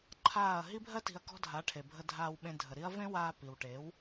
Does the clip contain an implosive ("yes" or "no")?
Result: yes